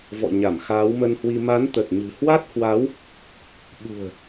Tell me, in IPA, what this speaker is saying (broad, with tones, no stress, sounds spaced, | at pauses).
v ɔ̰˧˨ ɲ a˧˩ m x aː˨˦ w m ə˧ n h w i˧ m a˨˦ n t̪ ə˨˩ t̚ ɲ ɨ̤˨˩ h w a˦˥ t̚ h w a˨˦ w | ɓ ṳ˨˩ ə̯